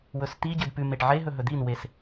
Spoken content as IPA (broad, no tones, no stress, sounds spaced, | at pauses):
w ɵ s t̪ i ɟ ɨ d p ʉ m e ʈ ʕ e ɦ ɵ ɦ ɵ d̪ i n w e s